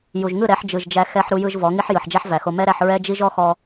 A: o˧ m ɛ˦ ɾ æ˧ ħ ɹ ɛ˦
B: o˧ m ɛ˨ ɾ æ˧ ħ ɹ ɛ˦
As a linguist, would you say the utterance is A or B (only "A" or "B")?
A